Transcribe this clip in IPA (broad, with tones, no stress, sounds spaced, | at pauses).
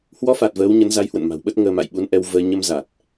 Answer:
h w ɔ˨˦ f a˨˩ t̚ v əː˨˦ w ɲ ə˨˦ n z a˨˦ j h w ə̰˧˨ n m a̤˨˩ w ɓ ə˦˥ t̚ ŋ əː˧ m a̰˧˨ j ɓ u˨˦ n ʔ ɛ˧ w v əː˧ ɲ ə˧ m z a˨˩ t̚